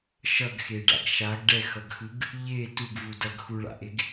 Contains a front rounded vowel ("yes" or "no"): no